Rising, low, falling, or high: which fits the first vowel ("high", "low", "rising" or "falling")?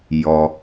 low